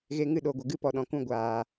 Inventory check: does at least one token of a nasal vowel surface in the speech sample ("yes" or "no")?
yes